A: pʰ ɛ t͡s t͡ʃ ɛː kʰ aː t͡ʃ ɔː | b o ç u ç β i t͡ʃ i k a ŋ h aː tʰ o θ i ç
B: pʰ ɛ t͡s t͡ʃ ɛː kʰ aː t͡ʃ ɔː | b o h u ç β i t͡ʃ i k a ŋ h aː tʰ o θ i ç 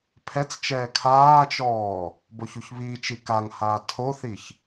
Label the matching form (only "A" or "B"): A